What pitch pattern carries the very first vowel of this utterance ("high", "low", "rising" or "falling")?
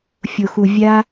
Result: low